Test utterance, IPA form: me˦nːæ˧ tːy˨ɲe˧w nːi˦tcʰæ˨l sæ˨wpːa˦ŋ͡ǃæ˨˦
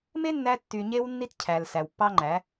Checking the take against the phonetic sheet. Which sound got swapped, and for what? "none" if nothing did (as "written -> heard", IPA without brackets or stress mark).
a˦ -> ɑ˦